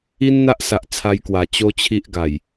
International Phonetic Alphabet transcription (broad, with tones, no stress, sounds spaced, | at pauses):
i˦ n n̪ a˦ ʔ s a˨ ʔ t͡sʰ a˧ j k w a˨˩ t͡ɕ o˦ t͡ɕʰ i˦ ʔ ɡ a˨˩ j